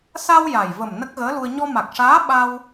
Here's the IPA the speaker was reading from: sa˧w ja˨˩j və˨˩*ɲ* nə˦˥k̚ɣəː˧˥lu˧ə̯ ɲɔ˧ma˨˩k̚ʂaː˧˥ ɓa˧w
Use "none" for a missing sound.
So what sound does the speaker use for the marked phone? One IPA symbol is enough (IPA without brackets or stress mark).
m